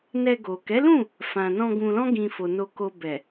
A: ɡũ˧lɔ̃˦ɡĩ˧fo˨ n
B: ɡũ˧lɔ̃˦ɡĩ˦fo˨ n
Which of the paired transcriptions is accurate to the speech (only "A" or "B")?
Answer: A